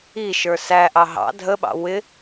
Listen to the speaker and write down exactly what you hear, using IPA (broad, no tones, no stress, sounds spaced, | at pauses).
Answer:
i ʃ ə˞ s æ ʔ ɑ ɦ ɑ̰ dʱ ə ɓ ɑ̰ w ɪ